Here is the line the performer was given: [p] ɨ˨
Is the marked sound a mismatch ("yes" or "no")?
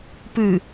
no